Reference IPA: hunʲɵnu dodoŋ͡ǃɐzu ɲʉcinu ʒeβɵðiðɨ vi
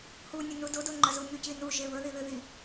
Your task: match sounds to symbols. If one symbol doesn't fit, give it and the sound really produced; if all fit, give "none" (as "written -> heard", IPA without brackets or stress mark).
v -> ð